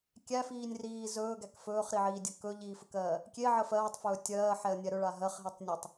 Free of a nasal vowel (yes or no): yes